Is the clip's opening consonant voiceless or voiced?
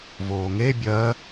voiced